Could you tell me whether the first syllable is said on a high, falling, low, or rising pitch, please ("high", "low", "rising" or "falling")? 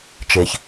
low